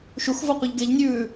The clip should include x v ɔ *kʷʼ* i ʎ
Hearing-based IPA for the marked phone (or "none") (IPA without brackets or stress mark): qʷ